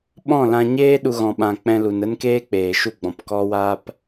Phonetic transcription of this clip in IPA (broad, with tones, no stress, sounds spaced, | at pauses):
ɓ ɔ̃˦˨ l ã˧ ɲ eː˦ ɗ u˧ ɣ ɔ̃˨ ɓ ã˨ k͡p ɛ̃˧ l u˨ n ə˦ n k eː˦ k͡p eː˨ ʃ u˦˨ ɡ͡b ɔ̃˨ p k ɔ˦ w aː˦ p